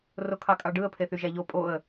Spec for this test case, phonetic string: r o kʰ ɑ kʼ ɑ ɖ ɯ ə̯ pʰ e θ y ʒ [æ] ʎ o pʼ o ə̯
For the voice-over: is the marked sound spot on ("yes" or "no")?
yes